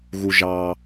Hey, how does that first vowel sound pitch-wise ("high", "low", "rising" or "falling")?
low